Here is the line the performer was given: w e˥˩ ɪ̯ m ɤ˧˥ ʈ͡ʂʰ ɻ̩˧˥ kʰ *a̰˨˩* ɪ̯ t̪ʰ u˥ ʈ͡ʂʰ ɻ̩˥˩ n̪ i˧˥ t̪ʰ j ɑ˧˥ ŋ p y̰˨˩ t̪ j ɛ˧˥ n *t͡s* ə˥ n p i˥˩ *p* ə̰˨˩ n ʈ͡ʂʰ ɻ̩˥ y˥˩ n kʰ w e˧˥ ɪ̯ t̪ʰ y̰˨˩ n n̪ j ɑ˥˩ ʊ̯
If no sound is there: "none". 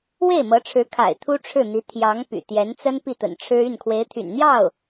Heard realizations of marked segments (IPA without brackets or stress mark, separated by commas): a̰˨˩, t͡s, t̪